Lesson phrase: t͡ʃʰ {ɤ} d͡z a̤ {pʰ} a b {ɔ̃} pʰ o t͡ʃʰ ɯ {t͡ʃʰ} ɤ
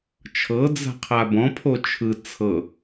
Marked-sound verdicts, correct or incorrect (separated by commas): correct, incorrect, correct, incorrect